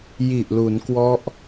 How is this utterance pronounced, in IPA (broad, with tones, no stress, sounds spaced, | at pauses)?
j i˨˩ ʔ l u˩˦ n k w ɔ˦˥ ʔ